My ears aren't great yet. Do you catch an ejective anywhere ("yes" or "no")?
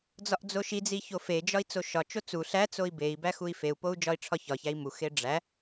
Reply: no